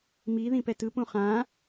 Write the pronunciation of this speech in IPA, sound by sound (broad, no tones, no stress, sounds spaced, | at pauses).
m i ð ĩ p ɛ t ɯ p ũ χ ã